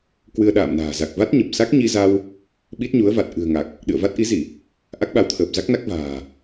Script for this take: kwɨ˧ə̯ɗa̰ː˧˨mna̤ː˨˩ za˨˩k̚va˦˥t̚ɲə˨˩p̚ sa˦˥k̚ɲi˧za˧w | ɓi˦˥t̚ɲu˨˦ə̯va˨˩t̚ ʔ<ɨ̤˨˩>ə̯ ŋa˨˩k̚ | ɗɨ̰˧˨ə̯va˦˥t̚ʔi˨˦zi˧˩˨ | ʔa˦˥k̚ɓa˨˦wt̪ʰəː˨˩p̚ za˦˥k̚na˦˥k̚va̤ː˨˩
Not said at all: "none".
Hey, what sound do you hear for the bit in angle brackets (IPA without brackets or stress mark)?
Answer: ɨ̤˨˩